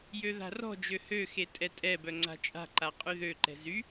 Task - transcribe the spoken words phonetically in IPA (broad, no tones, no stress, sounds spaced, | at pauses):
j ø ð a̤ r ɔ̤ d͡ʒ ø h ø x e tʼ ɛ tʼ ɛ b œ ŋ͡ǀ a̤ t͡ʃʼ a̤ ǃ a qʼ y ð ø ǃ ɛ̤ z y